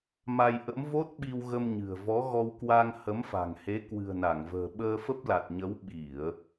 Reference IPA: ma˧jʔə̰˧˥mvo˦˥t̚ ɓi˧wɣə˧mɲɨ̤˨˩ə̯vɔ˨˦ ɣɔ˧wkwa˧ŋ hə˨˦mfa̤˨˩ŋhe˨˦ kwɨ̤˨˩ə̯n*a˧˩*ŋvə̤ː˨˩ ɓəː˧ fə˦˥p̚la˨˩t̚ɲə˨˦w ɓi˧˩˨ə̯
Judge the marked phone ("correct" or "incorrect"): correct